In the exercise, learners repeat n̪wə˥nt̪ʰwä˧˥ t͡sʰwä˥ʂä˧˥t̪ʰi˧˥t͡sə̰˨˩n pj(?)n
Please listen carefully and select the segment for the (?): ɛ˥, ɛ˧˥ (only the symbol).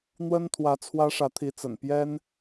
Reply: ɛ˥